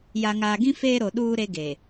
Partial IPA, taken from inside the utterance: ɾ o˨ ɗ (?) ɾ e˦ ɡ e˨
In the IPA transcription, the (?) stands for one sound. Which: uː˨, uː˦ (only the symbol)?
uː˦